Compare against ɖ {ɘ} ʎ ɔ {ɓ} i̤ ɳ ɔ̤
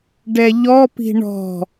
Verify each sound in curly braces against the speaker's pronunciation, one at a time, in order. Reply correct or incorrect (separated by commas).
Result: incorrect, incorrect